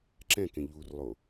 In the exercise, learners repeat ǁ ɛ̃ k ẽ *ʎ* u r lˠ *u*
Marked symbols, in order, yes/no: yes, no

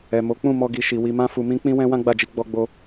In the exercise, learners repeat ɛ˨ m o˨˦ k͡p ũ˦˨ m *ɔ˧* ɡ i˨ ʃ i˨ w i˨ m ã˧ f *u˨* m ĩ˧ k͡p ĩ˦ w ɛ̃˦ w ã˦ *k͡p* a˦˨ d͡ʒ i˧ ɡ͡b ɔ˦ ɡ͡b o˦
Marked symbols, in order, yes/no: yes, yes, no

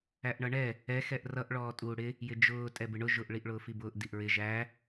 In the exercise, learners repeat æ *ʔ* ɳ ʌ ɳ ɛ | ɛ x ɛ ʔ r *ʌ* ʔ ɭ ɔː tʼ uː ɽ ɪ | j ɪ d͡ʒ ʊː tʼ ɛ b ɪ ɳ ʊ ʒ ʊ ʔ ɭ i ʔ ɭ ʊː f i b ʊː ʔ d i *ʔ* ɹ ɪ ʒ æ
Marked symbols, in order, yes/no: yes, yes, yes

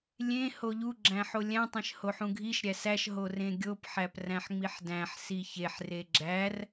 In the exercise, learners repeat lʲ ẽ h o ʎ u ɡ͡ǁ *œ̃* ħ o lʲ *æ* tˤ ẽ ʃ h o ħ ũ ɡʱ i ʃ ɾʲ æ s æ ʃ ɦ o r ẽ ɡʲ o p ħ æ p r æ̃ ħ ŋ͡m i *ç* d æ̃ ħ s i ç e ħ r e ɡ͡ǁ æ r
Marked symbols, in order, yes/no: no, no, no

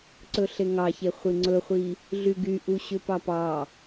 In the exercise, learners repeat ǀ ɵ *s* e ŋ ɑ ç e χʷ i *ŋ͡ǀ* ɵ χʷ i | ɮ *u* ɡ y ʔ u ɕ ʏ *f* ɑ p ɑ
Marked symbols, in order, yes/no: no, yes, no, no

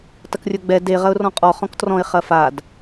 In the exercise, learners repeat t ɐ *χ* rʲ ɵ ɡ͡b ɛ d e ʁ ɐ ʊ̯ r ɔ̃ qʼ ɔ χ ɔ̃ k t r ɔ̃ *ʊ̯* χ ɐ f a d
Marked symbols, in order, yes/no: no, no

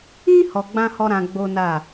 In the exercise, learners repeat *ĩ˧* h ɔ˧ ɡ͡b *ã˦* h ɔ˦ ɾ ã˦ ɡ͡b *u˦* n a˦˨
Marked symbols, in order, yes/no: no, yes, no

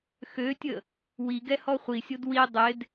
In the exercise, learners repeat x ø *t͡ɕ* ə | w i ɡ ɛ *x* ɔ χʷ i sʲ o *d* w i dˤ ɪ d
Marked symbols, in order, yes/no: no, no, yes

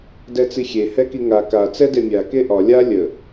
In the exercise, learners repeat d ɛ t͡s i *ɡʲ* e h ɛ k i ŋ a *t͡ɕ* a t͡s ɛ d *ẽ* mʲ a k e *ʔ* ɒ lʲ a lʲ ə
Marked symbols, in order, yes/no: no, no, no, yes

